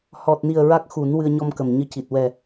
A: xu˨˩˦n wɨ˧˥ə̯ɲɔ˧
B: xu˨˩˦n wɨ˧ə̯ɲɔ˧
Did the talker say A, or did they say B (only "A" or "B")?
B